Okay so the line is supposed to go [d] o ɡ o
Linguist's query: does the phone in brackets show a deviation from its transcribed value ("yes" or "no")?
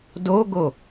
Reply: no